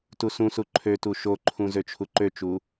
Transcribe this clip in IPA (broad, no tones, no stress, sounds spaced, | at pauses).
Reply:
t u s ũ s u ǃʰ ø t u ʃ o ǃʰ ũ z ø t͡ʃʰ u ǃ ø t͡ʃ u